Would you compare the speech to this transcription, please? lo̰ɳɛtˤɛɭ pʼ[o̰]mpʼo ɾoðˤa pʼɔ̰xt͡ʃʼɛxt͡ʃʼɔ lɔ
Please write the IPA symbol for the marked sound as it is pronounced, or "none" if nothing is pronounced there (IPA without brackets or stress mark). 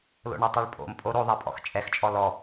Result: o̰